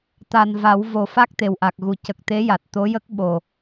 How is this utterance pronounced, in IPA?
t̪ a˨˩ n v a˨˩˦ w v o˨˩˦ f a˦˥ k̚ t̪ e˨˩ w ʔ a˨˩ k̚ ɣ u˨˩˨ c ə˨˩ k̚ t̪ e˧˥ j a˨˩ t̚ t̪ o˧˥ j ə˦˥ k̚ ɓ o˨˩

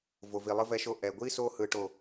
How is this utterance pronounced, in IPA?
v o˨ v i˨ lˠ ɯ˦ v ɛ˦ ʃ o˦ ʔ ɛ˨ ɡʷ i˦ s o˦ h ɯ˦ ʈ o˦˨

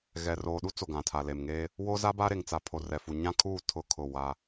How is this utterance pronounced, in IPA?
ɣ ɛ˨ r oː˨ ɗ u˦ t͡s o˨ ɡ ã˨ tʰ a˨ l e˨ m ŋ eː˦ | w o˦ z a˦ b a˦ ɾ e˨ ŋ t͡s a˨ pʰ o˨ r ɛ˨ f u˨ ɲ ã˦ kʰ uː˦˨ tʰ ʊ˦˨ kʰ ʊ˦˨ w a˦

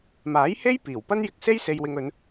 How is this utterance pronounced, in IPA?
m aː˨˥ j h e˥ j p iː˨˩ w p ɐ˥ n j ɪ˧ k̚ s e˥ j s e˧ j w ɪ˧ ŋ ɵ˨˧ n

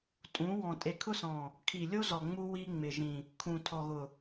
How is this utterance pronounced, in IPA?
tʼ ũ˨˦ w ɔ̃˨ tʼ e˨ kʰ ʊ˦ s ɔ̃˨ | kʰ i˨ lʲ o˦ z ɔ˨ ŋ͡m u˦ w i˦ ŋ͡m ɪ˨ ʒ ĩ˨ | kʰ ũ˨ tʰ ɔ˨ ɣ ʊ˨

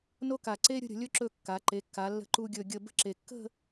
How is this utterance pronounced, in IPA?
n o˥ k a˧˩ ǀ e˥ ɾʲ ə̤˥˧ ɾʲ ə̤˩˧ lʲ ɵ˧ ǁ ɵ˧˩ kː a˩˧ ǃ e˩˧ kː a˩˧ lː ə̤˧ ǃ u˧ ɡʲ ɵ˧˩ ɡʲ ə˧˩ b ə̤˥ ǁ e˧˩ kː ə̤˥˧

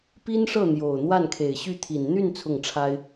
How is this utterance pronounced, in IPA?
p i˥ n ʂ ɤ˥˩ n̪ j o˨˩ ʊ̯ n̪ w a˥˩ n kʰ e˨˩ ɪ̯ ɕ y˥˩ t̪ʰ i˨˩ n n̪ y˥˧ n t͡sʰ ʊ˥˩ ŋ ʈ͡ʂʰ a˥ ɪ̯

